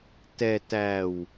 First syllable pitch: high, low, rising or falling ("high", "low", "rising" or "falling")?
low